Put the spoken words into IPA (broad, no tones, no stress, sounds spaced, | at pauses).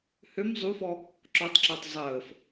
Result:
h ø m zˤ u f ɔ | ǁ ɔ tˤ ǁ ɔ tˤ zˤ əː f